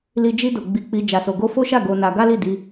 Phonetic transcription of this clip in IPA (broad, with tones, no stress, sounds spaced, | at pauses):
l i˧ d͡ʒ i˧ d o˨ ɡ͡b i˧ k͡p i˧ d͡ʒ a˨ s o˨ ɡ o˧ f o˦ ʃ a˦˨ ɡ o˧ n a˧ ɡ a˦ l i˦˨ d i˧